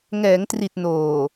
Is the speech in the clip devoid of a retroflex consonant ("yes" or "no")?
yes